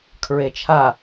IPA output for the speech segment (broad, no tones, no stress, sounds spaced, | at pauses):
kʰ ɹ e t͡ʃʰ a